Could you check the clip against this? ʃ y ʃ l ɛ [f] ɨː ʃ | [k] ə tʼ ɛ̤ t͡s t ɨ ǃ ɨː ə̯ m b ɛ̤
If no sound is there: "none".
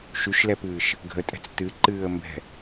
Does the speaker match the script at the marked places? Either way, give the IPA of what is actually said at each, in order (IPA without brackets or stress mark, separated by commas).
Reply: p, ɡʱ